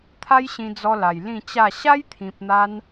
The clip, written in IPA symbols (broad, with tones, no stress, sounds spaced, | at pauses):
t̪ʰ a˦ j ɕ ĩ˧ d͡z ɔ˧ l a˨˩ j l ĩ˥˧ t͡ɕ a˥˧ ɕ a˦ j t̪ʰ ĩ˨ p̚ n̪ a˧ n